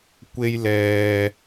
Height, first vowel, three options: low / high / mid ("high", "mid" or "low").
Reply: mid